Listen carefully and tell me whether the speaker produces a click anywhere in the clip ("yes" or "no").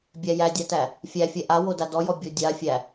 no